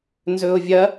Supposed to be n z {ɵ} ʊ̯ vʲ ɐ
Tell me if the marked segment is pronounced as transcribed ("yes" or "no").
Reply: yes